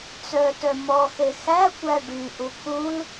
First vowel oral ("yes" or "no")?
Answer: yes